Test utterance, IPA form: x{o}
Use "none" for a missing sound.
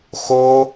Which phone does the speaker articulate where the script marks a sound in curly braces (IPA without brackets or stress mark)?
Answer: o